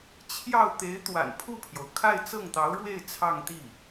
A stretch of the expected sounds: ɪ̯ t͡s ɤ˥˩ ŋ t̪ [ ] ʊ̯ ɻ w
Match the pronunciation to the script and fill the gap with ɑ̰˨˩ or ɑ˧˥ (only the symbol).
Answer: ɑ˧˥